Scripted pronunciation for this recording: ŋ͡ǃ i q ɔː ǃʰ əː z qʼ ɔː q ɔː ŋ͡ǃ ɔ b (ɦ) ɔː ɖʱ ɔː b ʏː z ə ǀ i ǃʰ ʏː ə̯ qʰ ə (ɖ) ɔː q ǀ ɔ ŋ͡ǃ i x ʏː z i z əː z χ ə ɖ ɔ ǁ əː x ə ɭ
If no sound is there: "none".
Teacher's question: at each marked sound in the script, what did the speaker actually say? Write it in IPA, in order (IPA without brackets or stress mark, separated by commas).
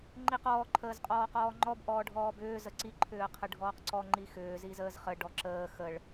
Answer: ʔ, ɖʱ